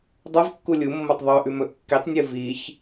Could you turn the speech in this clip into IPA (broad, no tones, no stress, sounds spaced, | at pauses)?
dˤ ɐ v kː u lʲ u mː o tˤ ðˤ ɵ ʔ ʉ m ɵ ʔ kː i tˤ nʲ ɨ v i ç